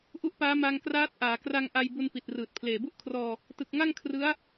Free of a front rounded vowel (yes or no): yes